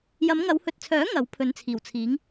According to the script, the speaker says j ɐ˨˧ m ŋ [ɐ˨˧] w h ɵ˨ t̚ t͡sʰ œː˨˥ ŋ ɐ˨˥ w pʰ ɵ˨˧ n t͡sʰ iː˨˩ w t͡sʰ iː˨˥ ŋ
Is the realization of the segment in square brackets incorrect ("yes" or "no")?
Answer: no